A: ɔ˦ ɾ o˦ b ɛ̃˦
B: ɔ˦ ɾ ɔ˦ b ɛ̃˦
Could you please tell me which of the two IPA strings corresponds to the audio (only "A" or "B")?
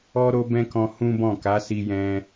A